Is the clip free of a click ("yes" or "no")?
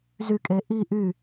yes